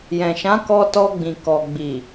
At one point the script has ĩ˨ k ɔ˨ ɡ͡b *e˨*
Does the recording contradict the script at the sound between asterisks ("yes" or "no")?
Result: yes